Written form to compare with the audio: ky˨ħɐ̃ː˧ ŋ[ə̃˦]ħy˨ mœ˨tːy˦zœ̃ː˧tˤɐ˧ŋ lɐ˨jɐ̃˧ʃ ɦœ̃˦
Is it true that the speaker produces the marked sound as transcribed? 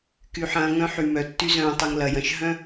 no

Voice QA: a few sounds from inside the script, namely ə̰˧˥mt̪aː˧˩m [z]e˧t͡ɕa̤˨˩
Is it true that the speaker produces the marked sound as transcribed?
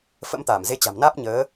yes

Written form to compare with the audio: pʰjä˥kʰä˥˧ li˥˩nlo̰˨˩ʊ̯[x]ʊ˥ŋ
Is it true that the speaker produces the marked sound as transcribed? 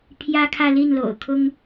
no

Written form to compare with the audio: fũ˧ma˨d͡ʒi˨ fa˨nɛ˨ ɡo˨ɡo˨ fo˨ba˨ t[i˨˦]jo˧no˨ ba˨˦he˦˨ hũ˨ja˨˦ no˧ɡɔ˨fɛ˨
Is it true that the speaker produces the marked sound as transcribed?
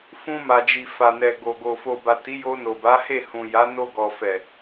yes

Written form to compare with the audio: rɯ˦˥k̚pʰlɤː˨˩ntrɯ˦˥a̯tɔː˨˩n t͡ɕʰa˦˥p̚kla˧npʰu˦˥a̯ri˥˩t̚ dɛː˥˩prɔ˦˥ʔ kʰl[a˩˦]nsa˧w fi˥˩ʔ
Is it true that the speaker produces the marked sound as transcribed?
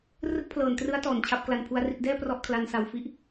no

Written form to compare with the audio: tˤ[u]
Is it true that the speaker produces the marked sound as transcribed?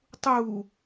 yes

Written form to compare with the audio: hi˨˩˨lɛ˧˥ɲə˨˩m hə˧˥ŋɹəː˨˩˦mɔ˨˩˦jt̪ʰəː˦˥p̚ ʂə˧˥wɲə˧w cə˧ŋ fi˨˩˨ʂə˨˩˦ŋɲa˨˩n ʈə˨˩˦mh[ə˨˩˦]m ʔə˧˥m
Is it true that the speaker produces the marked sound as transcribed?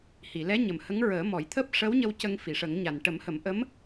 yes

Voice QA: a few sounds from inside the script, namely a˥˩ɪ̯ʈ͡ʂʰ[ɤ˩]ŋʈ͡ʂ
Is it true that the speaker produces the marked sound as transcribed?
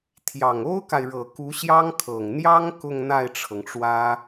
yes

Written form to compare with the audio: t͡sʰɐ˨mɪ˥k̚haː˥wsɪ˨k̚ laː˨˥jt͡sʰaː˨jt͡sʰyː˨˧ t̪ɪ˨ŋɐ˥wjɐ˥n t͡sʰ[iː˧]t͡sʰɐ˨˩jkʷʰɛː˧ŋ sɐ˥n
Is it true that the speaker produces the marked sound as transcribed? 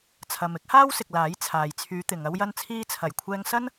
yes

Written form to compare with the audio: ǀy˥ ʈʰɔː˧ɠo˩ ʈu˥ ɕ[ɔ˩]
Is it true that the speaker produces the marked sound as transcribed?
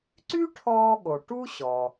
yes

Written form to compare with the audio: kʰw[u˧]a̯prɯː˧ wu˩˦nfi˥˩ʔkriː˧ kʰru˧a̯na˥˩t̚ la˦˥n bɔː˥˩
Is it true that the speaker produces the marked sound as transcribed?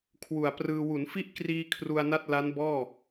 no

